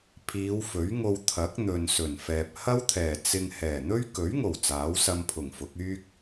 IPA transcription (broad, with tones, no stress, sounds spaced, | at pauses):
pʰ iː˨˧ w f ɵ˨˥ ɥ ŋ o˧ w t̪ʰ ɐ˨˥ k̚ n̪ ɵ˨ n s ɵ˨˩ n f ɛː˨ p̚ h ɐ˥ w t̪ʰ ɛː˨˩ t͡s ɪ˧ ŋ h ɛː˨˩ n̪ ɵ˥ ɥ k ɵ˨˥ ɥ ŋ o˨˩ w t͡s aː˨˥ w s ɐ˧ m pʰ ʊ˨˩ ŋ f ʊ˨˥ k̚ yː˥ k̚